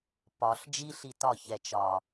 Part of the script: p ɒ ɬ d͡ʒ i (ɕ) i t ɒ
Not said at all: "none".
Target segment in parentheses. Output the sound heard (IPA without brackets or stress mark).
ɬ